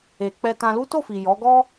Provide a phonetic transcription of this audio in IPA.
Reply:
e˨ k͡p ɛ˧ t ã˧ l u˦ t o˦˨ f i˨ j ɔ˨˦ ɡ ɔ˦

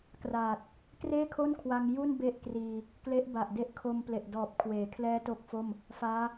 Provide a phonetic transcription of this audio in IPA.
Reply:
k r aː˨˩ t̚ | k r eː˥˩ kʰ o˥˩ n kʰ w a˧ ŋ j u˥˩ n b e˥˩ ʔ k r iː˧ | k l e˦˥ ʔ b a˨˩ ʔ d e˦˥ ʔ kʰ o˧ m p l e˨˩ ʔ d ɔː˨˩ p̚ kʰ w eː˩˦ kʰ l ɛː˦˥ t o˥˩ k̚ f o˥˩ m | f aː˦˥

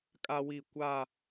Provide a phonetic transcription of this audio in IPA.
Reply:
kʼ a˦ w i˦˨ kʷ a˦˨

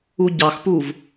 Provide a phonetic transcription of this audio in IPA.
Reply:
u ɟ ɑ x p u v

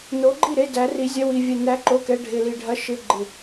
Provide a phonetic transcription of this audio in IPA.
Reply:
n o˧˥ ɡ͡ǃ i˥˨ ɾ e˧˥˧ d æ˧˥ r i˧˥ zʲ ɐ˧˥˧ w i˧ vʲ ɛ˧ n æ˧˥ ǃ o˧˥˧ k ɛ˧˥˧ ɖʱ ɪ˧ l i˧ ɖʱ ɐ˧˥ ʃ ɪ˧˥˧ ɡ͡ǃ ɪ˧

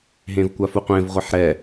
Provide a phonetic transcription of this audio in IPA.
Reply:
ɦ ẽ v kʷ a f u qʷ ẽ v ʁʷ i ħ ɾ ɛ

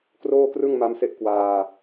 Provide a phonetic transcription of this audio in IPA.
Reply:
k r oː˥˩ k r ɯ˥˩ ŋ m a˦˥ m s e˦˥ ʔ k w aː˧

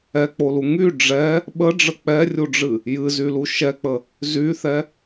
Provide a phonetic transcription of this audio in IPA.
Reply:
ɛ k͡p o l u ŋ y ɖ͡ʐ ɛ | ɓ ə ɖ͡ʐ ə k͡p ɛ rʲ u ɖ͡ʐ ɨ | j ɨ z y l u ʃ ɛ k͡p ə | z y θ ɛ

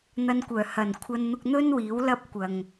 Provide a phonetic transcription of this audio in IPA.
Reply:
n̪ ɐ˧ n kʷ œː˨˩ h ɐ˨˩ n kʷʰ ɐ˧ n n̪ ʊ˧ k̚ n̪ ɵ˥ n w iː˨˥ w l ɐ˥ p̚ kʷ ɐ˨ ŋ

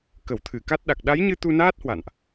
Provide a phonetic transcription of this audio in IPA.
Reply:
k ə˧˩ w t̪ʰ ɨ˧˩ k a˦˥ t̚ ɗ a˨˩ k̚ ɗ a˨˦ j ɲ ɨ˧ t̪ u˧ n aː˦˥ t̚ h w a̰˧˨ n ʔ

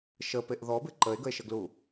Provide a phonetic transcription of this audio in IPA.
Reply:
ʃ ə p e ʔ ð ɔ b ɪ ǃ ə e̯ ɡ ə e̯ ʃ ə ɡ l u

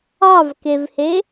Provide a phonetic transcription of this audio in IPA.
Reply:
ɑ v k e v h e

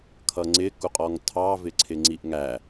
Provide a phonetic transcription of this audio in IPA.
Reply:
kʰ ʌ ŋ͡ǀ ɪ k u qʼ ɔ ŋ tʰ ɑ v ɪ ǀʰ ɪ ŋ͡ǀ i ʔ ŋ æ

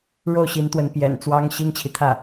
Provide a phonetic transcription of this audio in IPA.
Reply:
ɻ o˥˩ ʊ̯ ɕ i˧˥ n t̪ w ə˧˥ n p j ɛ̰˨˩ n t͡s w ɑ˥ ŋ ɕ i˥ ŋ t͡ɕʰ i˨ t̪ʰ ä˥˩

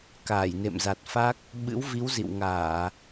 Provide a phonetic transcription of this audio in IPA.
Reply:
k aː˧˩ j n ḛ˧˨ m z a˨˩ t̚ f a˦˥ k̚ | ɓ ɨ̰˧˥ w v i˨˦ w z ḭ˧˨ w ŋ aː˧˩˨

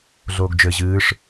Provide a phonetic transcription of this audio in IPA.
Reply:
ɮ oː ɡ d͡ʒ ɘ ʑ ɨː ʂ

